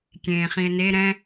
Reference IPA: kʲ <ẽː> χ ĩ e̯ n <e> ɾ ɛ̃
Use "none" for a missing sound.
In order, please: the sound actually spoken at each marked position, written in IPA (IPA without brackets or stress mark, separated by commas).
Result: ẽː, e